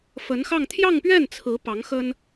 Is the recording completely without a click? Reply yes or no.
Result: yes